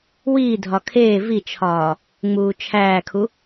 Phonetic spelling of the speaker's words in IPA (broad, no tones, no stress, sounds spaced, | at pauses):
w iː dʱ ɒ kʰ eː v i t͡ʃʰ ɒː | ŋ͡m uː t͡ʃʰ æː kʰ u